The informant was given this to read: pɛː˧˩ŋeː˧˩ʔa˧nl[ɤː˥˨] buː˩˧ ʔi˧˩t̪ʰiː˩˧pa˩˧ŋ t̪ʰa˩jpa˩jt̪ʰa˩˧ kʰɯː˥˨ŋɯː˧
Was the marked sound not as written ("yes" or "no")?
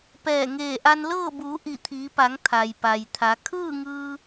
no